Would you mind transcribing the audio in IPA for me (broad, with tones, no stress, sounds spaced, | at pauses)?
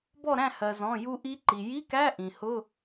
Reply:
b ɔ˥˨ ɾ æ̃˥˨ h ɜ˩ z ɔ̃˩˧˩ j u˧ ʔ i˦˥ ǃ i˩ j i˧˥˧ k æ˧˥˧ ʔ ĩ˩ h ʊ˧˥˧